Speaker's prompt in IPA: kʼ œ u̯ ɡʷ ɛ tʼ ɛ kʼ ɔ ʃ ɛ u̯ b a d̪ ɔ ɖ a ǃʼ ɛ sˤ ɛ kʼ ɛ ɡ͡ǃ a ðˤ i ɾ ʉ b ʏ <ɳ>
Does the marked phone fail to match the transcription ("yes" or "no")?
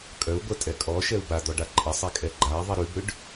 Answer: yes